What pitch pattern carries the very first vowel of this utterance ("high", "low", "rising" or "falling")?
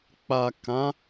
low